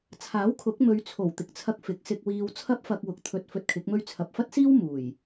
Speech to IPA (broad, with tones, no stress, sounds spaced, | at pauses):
t͡sʰ aː˨˥ w kʰ ʊ˨˥ k̚ m ɵ˨˧ ɥ t͡sʰ o˨˩ w t̪ ɪ˨ k̚ t͡sʰ ɐ˧ k̚ f ɪ˨˥ k̚ s ɪ˧ k̚ w iː˧ w t͡sʰ ɐ˥ p̚ f ɐ˧ k̚ w ʊ˨ k̚ t̪ʰ ɵ˧ t̚ f ɵ˧ t̚ kʰ ɪ˨˥ k̚ m ɵ˥ ɥ t͡sʰ ɐ˨ p̚ f ɐ˥ t̚ s iː˥ w m uː˨˩ j